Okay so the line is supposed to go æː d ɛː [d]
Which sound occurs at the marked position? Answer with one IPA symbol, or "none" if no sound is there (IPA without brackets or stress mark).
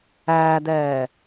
none